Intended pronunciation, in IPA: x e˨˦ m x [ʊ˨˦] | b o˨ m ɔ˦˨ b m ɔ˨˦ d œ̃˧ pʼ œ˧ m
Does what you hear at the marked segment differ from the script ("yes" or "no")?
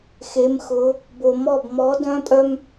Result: no